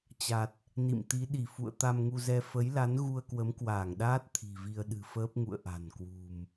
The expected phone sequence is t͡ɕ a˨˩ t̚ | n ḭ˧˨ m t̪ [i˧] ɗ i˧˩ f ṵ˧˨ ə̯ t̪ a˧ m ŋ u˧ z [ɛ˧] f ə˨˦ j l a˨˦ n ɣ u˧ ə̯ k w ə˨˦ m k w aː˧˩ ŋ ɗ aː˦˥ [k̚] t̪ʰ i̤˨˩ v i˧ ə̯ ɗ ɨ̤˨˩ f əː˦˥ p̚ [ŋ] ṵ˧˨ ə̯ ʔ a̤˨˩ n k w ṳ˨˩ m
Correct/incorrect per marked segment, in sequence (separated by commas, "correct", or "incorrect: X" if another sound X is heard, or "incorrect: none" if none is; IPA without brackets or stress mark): incorrect: i˨˦, correct, incorrect: t̚, correct